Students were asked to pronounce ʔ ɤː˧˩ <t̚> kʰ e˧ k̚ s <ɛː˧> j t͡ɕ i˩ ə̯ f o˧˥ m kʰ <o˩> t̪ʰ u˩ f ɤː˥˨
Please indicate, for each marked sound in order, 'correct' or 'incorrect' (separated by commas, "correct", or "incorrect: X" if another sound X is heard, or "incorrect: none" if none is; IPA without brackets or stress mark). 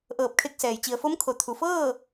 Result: incorrect: p̚, incorrect: ɛː˩, correct